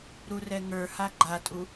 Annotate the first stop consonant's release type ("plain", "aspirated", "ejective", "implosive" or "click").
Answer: click